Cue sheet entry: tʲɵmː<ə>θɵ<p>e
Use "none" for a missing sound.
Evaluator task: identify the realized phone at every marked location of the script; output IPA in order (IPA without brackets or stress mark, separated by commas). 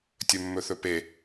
ɵ, p